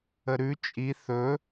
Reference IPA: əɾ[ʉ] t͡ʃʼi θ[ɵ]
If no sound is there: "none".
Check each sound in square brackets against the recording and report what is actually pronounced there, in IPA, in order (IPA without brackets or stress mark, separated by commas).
ʉ, ɵ